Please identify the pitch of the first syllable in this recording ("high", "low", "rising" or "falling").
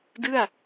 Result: falling